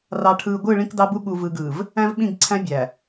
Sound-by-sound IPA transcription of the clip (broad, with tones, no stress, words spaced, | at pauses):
rɑ˨ʈʰɯː˨ɡʷɯ˦˨ ɭĩ˦kdɑ˦bu˦ ɠu˨vɯ˨ɡɯː˨v | æ̃˦vɓĩ˦˨ɡ ǀʰæ̃˦bʲæ˨